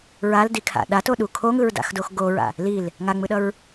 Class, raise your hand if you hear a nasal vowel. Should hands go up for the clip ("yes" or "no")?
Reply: no